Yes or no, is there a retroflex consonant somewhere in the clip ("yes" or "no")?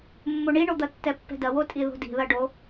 yes